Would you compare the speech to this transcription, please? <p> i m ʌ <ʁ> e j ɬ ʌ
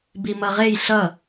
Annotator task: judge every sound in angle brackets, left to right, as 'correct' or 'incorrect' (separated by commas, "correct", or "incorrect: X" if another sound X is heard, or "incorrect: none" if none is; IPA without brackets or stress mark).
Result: incorrect: b, correct